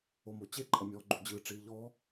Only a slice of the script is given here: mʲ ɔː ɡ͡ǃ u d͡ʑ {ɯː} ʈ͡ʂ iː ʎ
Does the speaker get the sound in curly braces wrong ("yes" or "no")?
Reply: no